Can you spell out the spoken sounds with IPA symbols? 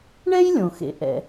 ɳ ɛ˥ j lʲ õ˩ x ḛ˩ ʔ ɛ̰˩

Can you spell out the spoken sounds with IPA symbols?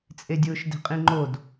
t͡sʼ e dʲ ʊː ʃ d e̤ qʼ ĩ ŋ͡ǃ o d

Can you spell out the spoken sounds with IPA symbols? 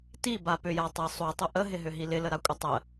t i b a p ʏ j a tˤ ə sˤ u tˤ ʏ ʔ ə ɦ ɪ ɦ ʏ ɦ i l ɪ l ə ɾ a kʷʼ ə tˤ ə

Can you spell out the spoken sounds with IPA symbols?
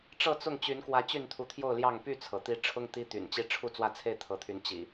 ʈ͡ʂ ɤ˥˨ t͡s ʊ˥˨ ŋ t͡ɕ y˨˦ n k w ä˨˦ t͡ɕ y˥˨ n t̪ʰ u˨˦ t̪ʰ j o˥˨ ʊ̯ l j ɑ˥˨ ŋ p y˥˨ t͡sʰ ɤ˩ t̪ i˨˦ ʈ͡ʂʰ ʊ˦ ŋ t̪ i˦ t̪ y̰˨˩ n t͡ɕ i˥˨ ʈ͡ʂʰ u˥˨ t͡s w ä˥˨ t͡sʰ e˥˨ ɪ̯ t̪ʰ ɤ˨˦ t̪ʰ y˨˦ n t͡ɕ ḭ˨˩

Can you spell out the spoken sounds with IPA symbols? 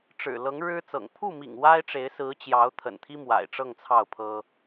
ʈ͡ʂ ɻ̩˨˩ l ɤ˧˥ ŋ ɻ ɻ̩˥ t͡s ɤ̰˨˩ ŋ pʰ u˥˩ m ḭ˨˩ ŋ w a˥ ɪ̯ ʈ͡ʂ e˧˥ ɪ̯ s ɹ̩˧˥ t͡ɕ j ɑ˧˥ ʊ̯ t̪ʰ ə̰˨˩ n t̪ʰ i˥ m w a̰˨˩ ɪ̯ ʈ͡ʂ ɤ˥˧ ŋ t͡sʰ ɑ˥˩ ʊ̯ pʰ ɤ˥

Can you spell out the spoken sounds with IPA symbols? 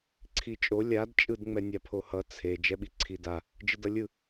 ǀʰ i t͡ʃʼ o lʲ a d t͡ʃʼ ɯ d ŋ͡m ɛ nʲ a pʰ o h ʌ t͡sʰ e d͡ʒ ɛ ɓ i ǀʰ i d a | d͡ʒ ɯ d ʌ lʲ ɯ

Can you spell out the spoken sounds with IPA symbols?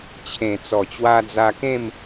t͡ɕʰ ẽ˨˩ t͡s ɔ˨˩ t͡ɕ w a˧ d͡z a˧ k ẽ˥˧ m

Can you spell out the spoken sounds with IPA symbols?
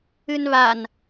ɨ n β a n

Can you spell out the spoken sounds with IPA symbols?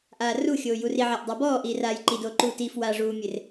ʔ aː r u xʲ oː j u r i ʕ a ʔ dˤ a b ɔː ʔ iː r aː j ǃ i d oː ǃ uː t iː f w aː ʐ uː mʲ e r

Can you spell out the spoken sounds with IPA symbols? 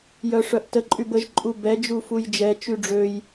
j œ ʂ œ ʔ t ə ǃʼ y b ə ʒ ǃʼ u b ɛ d͡ʒ u f u j d͡ʒ ɛ t͡ʃ y ɖ͡ʐ ø j

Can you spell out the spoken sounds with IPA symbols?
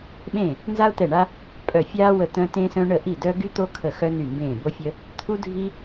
ɓ ẽ˦˨ | n z a˥ ʊ̯ t̪ ɛ˦˨ ɳ a˥ | pʼ œ˦˨ fʲ aː˥ w ə˦˨ t̪ œ̃˥ t ẽ˥ s œ̃˥ ɳ ə˦˨ ʔ i˦˨ d œ˥ ɡ y˥ t̪ o˥ kʰ ə˦˨ x œ˥ n y˦˨ m b ẽː˦˨ b o˥ fʲ ə˥ | t̪ʰ u˥ dʱ i˥

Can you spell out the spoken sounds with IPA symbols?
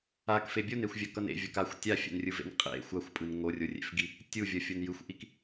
a k f e bʲ o n e xʷ vʲ a k ʌ n ḛ vʲ ʌ k a xʷ tʲ a fʲ ɛ̰ n rʲ ɯ v ḛ n qʼ ḛ xʷ a xʷ pʼ ɯ n ŋ o rʲ o rʲ ḛ f ɡ i | tʲ u vʲ ʌ fʲ o n j ɯ xʷ ʔ i k

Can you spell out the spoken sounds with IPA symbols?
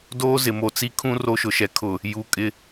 d oː˦ z ɪ˨ m o˨ t͡s i˦ kʰ ũ˦ r o˦ ʃ ʊ˨ ʃ ɛ˨ kʰ ʊ˨ | j u˨ kʼ ɪ˦

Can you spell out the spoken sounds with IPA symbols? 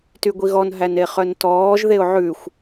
t y ɡʷ i ɣ ɔ n ɦ æ n e χ œ n t ɔː ʒ ð e ʊ̯ ʕ ʉ xʷ

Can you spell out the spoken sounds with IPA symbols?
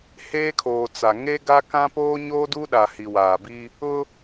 h eː˦ kʰ oː˨ t͡s a˨ ŋ e˦ ɡ a˦ k ã˦ p oː˦ ɲ oː˦ d u˦ ɗ a˨ h i˨ w aː˨ b i˦ | ʊ˦

